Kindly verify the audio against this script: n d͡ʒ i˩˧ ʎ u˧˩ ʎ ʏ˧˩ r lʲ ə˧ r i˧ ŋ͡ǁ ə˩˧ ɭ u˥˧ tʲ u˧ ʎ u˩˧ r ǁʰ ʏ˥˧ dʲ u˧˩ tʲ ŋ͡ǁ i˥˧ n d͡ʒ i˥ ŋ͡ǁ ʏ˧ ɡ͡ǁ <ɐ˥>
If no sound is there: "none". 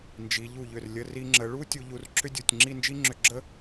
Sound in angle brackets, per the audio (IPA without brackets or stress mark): ə˥